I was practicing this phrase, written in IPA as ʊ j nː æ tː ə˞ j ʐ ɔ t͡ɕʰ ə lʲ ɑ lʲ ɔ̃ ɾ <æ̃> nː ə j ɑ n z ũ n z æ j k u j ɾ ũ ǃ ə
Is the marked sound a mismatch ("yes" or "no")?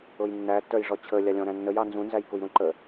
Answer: no